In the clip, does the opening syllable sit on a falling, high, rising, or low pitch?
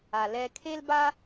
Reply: low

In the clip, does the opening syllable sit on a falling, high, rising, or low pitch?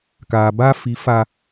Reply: low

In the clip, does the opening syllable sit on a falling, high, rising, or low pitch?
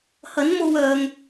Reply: rising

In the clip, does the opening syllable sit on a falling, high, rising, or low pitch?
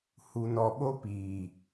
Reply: low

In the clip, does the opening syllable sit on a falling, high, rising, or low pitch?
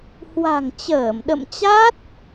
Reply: low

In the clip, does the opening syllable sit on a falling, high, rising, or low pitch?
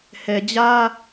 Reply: low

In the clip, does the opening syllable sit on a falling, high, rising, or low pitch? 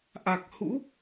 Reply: low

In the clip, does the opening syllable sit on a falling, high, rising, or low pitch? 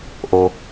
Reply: low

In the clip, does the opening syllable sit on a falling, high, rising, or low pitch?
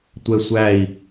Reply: high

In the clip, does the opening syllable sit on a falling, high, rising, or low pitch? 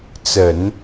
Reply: low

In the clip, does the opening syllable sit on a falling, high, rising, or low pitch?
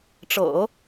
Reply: low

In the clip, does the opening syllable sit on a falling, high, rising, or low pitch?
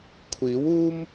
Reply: rising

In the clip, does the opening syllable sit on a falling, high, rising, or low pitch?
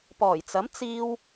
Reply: low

